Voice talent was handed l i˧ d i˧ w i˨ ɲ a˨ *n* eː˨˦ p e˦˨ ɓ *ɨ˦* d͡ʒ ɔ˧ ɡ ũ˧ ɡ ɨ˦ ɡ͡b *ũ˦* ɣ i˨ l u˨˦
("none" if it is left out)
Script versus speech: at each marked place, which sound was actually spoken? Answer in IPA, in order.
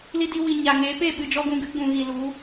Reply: ŋ, ɨ˨, ũ˨

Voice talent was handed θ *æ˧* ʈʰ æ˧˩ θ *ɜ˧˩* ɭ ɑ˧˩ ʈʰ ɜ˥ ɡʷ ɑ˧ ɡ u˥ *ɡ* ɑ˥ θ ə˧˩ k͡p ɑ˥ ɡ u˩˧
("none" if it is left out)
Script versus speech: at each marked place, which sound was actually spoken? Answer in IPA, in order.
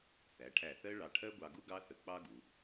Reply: æ˩˧, ɜ˥, ɡ

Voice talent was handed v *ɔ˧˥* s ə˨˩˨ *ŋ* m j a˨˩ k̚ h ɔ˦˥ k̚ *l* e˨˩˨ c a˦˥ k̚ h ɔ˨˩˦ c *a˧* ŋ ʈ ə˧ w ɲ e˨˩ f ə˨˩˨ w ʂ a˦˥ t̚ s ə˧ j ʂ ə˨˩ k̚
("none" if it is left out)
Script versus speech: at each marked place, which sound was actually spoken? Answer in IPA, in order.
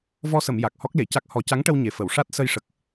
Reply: ɔ˧, none, l, a˧˥

